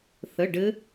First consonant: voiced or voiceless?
voiceless